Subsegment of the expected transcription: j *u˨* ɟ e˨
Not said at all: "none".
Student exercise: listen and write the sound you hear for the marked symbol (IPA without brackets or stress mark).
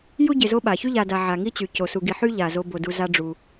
u˥